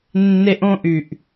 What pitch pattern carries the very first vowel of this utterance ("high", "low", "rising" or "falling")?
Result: high